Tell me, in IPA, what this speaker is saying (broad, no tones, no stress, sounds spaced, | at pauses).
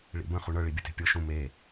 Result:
ɭ ḭ b ə̃ χ u ɳ ɤ ɭ i bʲ ə t e̤ pʲ ɤ ʃ ũ m e